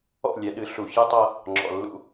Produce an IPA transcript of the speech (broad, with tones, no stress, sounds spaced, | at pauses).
ɔ̰˦˨ lʲ ɛ˨ ɗ ɨ˨ ɬ u˨ ç ɨ˦ tˤ ɤ˦ | ŋ͡ǁ ɔ̰˨ lː ṵ˦